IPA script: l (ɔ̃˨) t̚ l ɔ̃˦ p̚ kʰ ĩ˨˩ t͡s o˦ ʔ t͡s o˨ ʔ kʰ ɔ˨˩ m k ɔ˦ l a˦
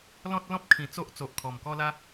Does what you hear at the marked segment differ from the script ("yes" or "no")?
yes